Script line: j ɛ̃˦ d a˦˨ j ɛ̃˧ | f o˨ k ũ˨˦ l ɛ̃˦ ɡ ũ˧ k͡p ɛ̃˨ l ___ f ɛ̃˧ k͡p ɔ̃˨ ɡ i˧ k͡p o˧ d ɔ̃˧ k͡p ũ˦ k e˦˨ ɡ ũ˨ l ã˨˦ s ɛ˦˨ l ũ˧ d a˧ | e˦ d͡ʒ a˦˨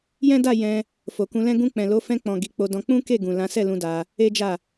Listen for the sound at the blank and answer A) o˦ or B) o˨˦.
B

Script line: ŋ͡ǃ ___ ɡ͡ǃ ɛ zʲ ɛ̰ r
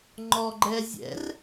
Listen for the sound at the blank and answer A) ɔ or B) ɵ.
A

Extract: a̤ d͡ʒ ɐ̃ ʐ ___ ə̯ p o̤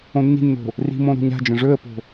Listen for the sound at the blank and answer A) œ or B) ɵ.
B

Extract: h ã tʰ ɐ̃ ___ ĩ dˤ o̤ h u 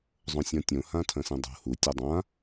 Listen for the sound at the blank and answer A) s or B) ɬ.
A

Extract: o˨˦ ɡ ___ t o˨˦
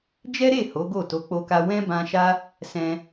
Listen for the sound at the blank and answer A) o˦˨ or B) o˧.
A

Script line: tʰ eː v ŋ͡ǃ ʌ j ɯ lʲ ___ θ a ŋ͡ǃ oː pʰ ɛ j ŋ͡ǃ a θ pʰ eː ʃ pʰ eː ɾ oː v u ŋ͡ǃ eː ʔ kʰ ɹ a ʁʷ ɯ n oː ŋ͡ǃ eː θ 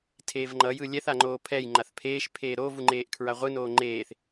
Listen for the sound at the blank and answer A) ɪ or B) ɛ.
B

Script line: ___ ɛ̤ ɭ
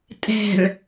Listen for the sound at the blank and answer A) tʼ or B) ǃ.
A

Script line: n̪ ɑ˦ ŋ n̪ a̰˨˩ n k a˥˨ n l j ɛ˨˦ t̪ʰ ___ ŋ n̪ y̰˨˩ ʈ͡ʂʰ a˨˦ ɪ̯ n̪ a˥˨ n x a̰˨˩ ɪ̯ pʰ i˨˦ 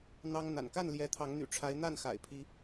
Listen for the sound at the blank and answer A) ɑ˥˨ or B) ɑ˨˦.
B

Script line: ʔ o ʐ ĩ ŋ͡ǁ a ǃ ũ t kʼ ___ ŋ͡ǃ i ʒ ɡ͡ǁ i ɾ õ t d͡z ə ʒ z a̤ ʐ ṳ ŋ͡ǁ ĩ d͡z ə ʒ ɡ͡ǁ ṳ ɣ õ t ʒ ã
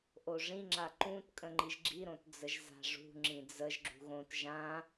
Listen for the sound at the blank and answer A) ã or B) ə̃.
B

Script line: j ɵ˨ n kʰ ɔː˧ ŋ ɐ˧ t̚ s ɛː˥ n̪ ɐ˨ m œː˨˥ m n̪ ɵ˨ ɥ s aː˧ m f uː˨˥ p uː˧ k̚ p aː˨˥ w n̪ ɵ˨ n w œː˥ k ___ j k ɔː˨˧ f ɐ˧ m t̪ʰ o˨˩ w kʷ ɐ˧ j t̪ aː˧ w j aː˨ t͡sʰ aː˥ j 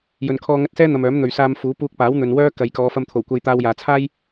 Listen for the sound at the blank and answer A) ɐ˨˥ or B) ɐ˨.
B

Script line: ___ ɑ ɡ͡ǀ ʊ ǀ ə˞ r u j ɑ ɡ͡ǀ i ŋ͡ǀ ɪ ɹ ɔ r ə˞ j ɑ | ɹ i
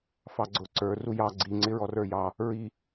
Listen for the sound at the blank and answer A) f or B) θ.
A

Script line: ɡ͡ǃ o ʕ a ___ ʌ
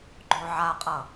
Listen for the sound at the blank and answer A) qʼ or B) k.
A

